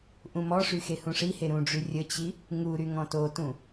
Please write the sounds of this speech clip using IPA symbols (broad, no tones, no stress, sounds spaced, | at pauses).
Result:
ʔ ũ m ɔ ʂ y x e h ũ ʂ i h e ɾ ũ ɖ͡ʐ y rʲ ə t͡ɕ i | ŋ u ɾ y ŋ ɔ̃ t o t ũ